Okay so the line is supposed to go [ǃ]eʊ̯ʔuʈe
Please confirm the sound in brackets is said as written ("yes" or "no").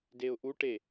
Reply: no